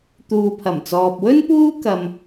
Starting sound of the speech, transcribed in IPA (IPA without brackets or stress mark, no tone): t̪